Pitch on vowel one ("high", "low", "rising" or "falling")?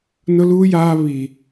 high